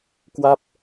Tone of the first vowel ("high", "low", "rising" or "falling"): falling